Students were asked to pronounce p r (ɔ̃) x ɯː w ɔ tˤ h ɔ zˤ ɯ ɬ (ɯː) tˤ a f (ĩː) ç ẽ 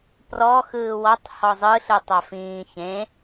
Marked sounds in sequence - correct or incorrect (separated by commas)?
incorrect, incorrect, correct